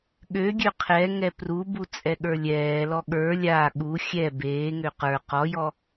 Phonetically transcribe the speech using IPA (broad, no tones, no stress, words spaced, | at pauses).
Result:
ɠøɡʲø qʰɛ ŋɛprubu t͡sʼɛɠə˞lʲɛːlɔ ɠə˞ lʲa ɠu xʲɛ beːŋø qə˞ qɔjɔ